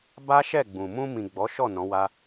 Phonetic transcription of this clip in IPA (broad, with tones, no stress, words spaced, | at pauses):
ba˦ʃɛ˦˨ɡ͡bũ˨ mũ˧mĩ˨ ɡ͡bɔ˨˦ʃɔ˦˨ nɔ̃˨˦wa˦